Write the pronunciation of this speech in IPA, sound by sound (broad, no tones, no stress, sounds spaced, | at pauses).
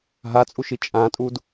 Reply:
ɦ a t͡sʼ u ʃ i t͡ʃʼ ã tʼ u d